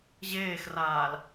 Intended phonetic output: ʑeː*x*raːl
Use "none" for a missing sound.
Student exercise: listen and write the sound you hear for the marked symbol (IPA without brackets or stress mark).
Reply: x